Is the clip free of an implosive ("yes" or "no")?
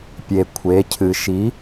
yes